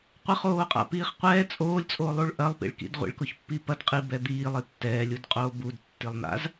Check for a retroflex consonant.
present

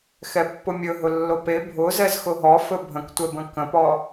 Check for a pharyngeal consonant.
absent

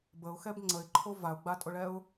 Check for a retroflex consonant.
present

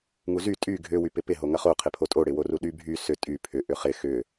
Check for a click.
absent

